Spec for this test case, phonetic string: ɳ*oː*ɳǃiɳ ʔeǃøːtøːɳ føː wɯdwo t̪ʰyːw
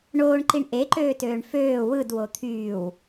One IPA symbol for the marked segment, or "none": oː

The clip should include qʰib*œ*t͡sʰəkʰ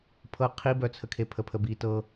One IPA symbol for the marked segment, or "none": œ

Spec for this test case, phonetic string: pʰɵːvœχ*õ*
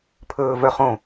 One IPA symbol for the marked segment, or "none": õ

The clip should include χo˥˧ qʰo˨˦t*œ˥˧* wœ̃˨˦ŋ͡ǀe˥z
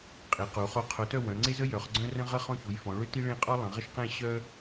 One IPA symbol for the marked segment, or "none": œ˥˧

